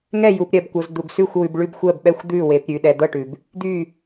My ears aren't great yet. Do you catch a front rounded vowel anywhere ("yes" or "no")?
yes